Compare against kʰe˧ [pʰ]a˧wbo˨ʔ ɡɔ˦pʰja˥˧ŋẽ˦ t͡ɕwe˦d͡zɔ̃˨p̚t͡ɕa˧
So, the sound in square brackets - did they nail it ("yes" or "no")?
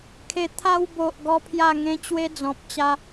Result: no